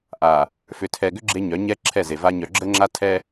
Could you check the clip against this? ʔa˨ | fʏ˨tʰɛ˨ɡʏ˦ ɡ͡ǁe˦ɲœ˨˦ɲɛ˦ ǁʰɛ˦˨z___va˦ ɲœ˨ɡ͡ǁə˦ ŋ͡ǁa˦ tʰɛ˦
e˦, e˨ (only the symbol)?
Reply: e˨